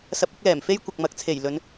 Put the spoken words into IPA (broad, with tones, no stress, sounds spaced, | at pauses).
s ɐ˧ p̚ ɪ˨˥ k̚ l ɛː˨˩ m f e˥ j kʷ ɐ˨ k̚ m ɐ˨˥ k̚ t͡sʰ e˨˩ j l ɵ˨˧ n